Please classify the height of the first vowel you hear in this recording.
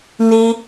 high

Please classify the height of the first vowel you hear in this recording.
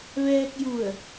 mid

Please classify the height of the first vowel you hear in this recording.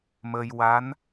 mid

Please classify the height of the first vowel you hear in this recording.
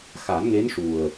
low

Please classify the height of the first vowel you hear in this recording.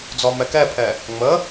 mid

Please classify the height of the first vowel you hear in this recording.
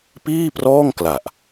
high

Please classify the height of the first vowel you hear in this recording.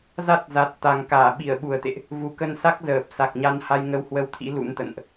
low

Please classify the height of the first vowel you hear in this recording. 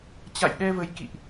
low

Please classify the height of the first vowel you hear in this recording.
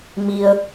high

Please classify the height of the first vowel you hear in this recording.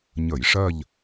mid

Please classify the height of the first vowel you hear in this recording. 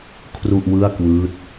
high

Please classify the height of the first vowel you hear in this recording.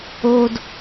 mid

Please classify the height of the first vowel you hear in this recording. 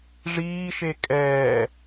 high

